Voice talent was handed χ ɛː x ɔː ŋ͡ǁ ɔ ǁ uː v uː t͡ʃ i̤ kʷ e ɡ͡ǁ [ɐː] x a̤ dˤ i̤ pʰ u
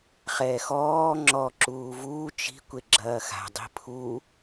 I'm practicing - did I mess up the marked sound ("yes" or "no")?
no